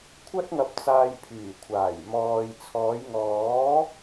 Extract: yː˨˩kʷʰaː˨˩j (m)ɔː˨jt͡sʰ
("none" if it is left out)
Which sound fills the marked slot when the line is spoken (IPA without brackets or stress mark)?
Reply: m